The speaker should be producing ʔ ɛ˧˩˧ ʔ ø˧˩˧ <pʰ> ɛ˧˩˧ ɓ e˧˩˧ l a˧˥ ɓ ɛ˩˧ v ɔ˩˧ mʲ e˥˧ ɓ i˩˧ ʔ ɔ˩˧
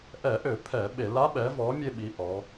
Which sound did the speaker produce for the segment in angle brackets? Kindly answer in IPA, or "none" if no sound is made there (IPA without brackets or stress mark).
pʰ